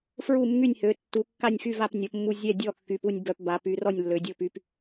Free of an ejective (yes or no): yes